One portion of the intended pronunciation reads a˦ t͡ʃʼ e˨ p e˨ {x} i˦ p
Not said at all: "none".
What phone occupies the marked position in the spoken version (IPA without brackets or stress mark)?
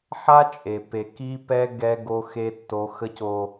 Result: k